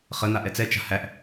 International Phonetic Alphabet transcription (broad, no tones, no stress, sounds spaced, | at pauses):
χ ə n̪ a ʔ ɛ t͡s ɛ t͡ʃ a̤ h æ ʔ